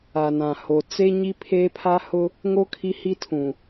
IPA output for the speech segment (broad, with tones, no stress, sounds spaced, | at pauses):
a˨ n ã˨ h o˨ t͡s e˦ ɲ i˦ pʰ eː˦ pʰ a˦ h ʊ˦ | ŋ o˦ kʰ i˦ h i˦ tʰ ũ˨